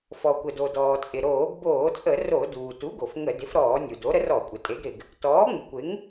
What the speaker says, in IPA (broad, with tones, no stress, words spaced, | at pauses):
fɔ˩kʷə˩do˩ dɔː˩t͡sʼɪ˩ ɾoː˧˩˧ɡboː˧˩˧t͡sʼə˧˩˧ ro˧˩˧duː˩ tu˩˥ɡo˩f ŋə˧˩˧ dɪ˩˥fɾɔː˧˩˧ nʲu˩do˩˥ ɾə˩˥rɔ˧˩˧kʷʼɪ˩ tʼe˩˥ɡɾɪ˩ɡ | tɔː˩˥ŋ͡mu˩kʷɪ˩˥ŋ